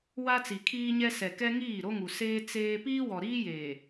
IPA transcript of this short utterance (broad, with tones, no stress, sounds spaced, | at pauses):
w a˦ t͡s i˨ kʰ iː˦ ɲ ɛ˦ s ɛ˨ k ɛ˦ ŋ iː˦˨ ɾ o˦ ŋ u˨ s eː˦ t͡s eː˦ p iː˦ w ɔ˨ ɾ iː˦ j eː˨